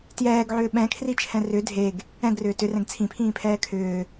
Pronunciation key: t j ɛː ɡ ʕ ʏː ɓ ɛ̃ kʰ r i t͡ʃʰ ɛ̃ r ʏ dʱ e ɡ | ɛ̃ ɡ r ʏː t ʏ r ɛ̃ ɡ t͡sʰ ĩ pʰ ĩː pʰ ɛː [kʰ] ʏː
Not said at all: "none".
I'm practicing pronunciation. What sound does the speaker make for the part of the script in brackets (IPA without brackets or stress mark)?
kʰ